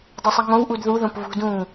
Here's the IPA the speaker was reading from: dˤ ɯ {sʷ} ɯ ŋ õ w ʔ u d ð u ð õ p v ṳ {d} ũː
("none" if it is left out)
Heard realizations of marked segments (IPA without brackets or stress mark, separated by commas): sˤ, d